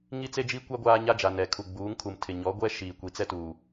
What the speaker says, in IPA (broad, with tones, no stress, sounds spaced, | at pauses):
ŋ i˦ t͡s e˦ d͡ʒ i˦ kʷ a˦ ɡʷ aː˦ ɲ a˦ d͡ʒ a˨ n ɛ˨ kʰ u˨ ɡ͡b uː˨˦ ŋ kʰ u˨ m tʰ ɪ˨ ɲ ɔ˨˦ ɡʷ ɛ˦ ʃ iː˨ kʷ i˨ t͡s ɛ˦ t uː˨